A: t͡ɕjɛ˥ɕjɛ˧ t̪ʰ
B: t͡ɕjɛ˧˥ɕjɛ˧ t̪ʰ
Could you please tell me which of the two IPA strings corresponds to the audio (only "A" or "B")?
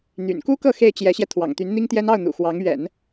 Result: B